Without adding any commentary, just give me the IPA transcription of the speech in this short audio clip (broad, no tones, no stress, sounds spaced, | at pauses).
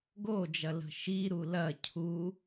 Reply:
ɡ o d͡ʒ ɐ l ə̤ ʃ i ɾ u l ɐ cʰ u